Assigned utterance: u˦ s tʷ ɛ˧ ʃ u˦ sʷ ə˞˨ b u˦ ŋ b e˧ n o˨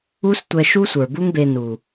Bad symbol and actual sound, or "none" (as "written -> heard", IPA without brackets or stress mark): o˨ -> u˨